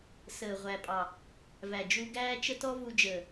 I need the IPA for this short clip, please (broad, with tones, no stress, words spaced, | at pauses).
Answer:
səː˨ʁʷæ˨pʼɑ˨ | væ˨d͡ʒu˧ ɡæː˦t͡ʃə˦tɔ˦ vu˧d͡ʒəː˨